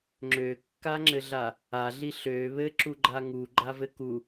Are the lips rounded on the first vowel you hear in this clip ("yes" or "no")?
yes